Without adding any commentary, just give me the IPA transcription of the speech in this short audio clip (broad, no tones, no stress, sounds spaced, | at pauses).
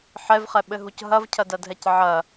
ħ ɛ v χ ɛ ɓ ɘ ɦ u c ɦ ɐ v cʰ ɐ d ɐ dʱ ɛ c ʕ ɐ